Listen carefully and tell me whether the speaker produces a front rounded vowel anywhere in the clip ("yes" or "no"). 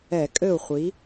no